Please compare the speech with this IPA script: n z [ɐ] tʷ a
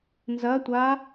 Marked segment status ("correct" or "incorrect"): correct